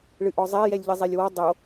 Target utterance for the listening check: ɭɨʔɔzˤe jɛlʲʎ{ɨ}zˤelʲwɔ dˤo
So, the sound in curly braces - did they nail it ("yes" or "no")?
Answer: yes